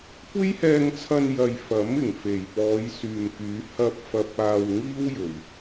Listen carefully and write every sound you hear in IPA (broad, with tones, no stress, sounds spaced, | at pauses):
kʷ e˥ j h ɛː˧ ŋ t͡sʰ ɐ˧ n j ɐ˨ j f ɐ˨˥ m ɪ˨˩ ŋ f e˨˩ j p ɔː˨˧ j s yː˨ m k yː˨˧ h ɐ˧ p̚ f ɐ˨ p̚ aː˨ w ŋ iː˥ w j ɵ˨˩ ɥ